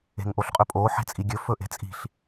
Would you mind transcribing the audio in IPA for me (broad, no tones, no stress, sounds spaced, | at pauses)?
e̤ ŋ ʔ o ɬ qʼ ɵ pʼ oː ħ e̤ t͡sʼ i ɡʲ ɵ f ɵ ʔ e̤ t͡sʼ i̤ ɬ